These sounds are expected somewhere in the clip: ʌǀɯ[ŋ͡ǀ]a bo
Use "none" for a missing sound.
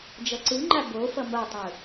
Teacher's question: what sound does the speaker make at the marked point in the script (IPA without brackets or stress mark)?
ŋ͡ǃ